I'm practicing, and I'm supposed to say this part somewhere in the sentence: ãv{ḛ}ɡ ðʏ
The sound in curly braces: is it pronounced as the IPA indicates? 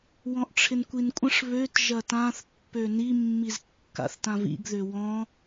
no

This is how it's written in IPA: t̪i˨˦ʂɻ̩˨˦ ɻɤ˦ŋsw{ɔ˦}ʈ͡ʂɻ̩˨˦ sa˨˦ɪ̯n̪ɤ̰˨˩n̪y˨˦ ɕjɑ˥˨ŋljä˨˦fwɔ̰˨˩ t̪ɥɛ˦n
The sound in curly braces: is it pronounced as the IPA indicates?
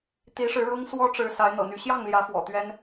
yes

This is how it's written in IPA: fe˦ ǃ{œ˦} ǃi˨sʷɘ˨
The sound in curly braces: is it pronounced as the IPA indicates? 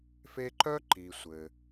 yes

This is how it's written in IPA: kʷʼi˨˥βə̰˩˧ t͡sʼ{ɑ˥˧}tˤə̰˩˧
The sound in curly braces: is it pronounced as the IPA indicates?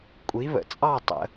yes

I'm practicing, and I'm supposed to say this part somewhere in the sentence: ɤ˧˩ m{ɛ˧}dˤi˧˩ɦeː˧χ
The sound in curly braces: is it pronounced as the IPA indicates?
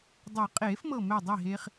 no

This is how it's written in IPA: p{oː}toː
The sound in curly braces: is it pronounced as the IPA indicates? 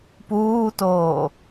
no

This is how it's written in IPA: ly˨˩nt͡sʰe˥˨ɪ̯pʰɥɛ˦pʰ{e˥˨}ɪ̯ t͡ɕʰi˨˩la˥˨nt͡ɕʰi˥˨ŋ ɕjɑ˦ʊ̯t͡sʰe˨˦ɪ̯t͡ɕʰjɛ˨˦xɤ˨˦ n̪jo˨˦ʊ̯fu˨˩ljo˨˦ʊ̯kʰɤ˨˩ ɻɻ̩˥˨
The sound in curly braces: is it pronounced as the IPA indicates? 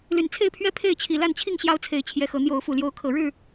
yes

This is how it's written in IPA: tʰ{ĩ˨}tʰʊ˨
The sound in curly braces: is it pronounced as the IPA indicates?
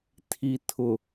no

